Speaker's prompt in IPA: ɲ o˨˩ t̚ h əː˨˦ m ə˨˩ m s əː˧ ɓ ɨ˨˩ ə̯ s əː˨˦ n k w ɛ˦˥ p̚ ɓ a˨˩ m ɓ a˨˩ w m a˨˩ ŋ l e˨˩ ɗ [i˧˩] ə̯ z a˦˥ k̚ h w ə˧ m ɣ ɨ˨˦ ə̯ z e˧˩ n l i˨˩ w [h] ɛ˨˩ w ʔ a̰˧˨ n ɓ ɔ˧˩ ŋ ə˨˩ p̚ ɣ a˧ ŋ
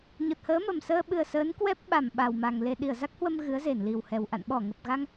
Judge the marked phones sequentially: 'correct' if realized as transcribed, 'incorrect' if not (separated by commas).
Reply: correct, correct